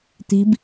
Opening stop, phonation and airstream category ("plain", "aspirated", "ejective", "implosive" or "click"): plain